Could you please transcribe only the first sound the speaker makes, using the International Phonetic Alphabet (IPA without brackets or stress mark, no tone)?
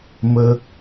m